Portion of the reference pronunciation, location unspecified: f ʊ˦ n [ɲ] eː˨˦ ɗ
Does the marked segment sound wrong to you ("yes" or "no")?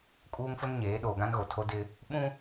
no